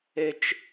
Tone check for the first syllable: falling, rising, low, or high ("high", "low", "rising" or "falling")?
high